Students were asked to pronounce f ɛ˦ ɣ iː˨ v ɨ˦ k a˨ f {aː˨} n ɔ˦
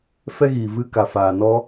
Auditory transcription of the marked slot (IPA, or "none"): aː˨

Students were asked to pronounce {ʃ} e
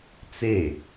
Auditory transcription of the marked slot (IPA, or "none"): t͡s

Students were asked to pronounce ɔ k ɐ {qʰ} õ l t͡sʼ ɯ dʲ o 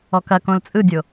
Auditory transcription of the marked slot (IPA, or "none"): k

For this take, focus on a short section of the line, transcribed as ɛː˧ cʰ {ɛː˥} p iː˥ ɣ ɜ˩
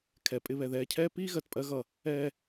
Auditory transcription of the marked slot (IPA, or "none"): ɛː˥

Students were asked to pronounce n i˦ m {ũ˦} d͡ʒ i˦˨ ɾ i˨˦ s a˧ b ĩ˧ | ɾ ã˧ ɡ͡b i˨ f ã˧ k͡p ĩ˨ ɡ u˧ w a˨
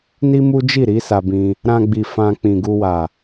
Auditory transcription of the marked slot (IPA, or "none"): u˦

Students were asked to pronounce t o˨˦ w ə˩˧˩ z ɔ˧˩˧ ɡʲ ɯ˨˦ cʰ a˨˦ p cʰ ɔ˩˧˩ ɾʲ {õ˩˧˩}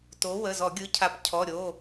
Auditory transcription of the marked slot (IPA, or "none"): o˩˧˩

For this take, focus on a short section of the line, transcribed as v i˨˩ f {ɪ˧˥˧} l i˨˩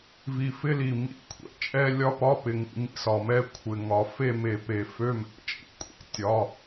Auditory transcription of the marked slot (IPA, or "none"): ɪ˧˥˧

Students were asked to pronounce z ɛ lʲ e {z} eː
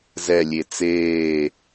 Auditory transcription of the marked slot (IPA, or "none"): t͡s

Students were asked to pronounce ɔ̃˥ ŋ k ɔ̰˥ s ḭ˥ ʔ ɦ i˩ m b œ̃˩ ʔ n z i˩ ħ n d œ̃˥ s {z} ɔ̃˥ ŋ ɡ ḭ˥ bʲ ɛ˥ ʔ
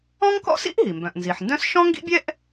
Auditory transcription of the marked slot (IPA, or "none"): ʃ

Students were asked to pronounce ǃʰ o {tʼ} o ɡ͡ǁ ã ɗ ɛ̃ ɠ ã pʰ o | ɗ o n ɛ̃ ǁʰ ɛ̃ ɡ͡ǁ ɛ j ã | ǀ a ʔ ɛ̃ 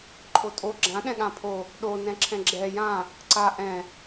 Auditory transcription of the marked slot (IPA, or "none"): tʼ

